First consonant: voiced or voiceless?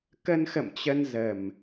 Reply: voiceless